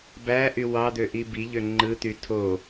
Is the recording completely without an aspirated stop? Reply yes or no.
no